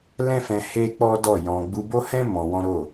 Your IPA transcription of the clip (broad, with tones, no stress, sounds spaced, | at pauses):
l ɛ̃˦ f ɛ̃˧ h e˦ k͡p ɔ˦ d ɔ˦˨ j ɔ̃˧ ɡ͡b u˧ b o˦ h ɛ̃˦ m ɔ̃˧ w ɔ̃˦ ɾ o˦˨